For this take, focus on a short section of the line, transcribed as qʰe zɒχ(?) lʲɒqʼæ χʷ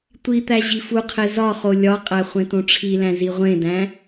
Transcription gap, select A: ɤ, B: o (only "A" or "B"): B